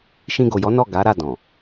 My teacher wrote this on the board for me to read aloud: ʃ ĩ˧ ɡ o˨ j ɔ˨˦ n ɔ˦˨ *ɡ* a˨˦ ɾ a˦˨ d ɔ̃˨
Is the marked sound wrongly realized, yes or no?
no